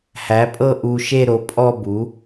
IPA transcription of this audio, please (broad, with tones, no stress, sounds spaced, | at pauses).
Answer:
h æ˩˥ pʼ ɤ˥˧ ʔ u˧ ʃ e˥˧ ɾ o˩˥ pʼ ɔ˥˧ b u˩˥